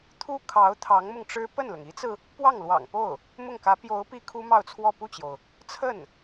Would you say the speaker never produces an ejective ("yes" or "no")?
yes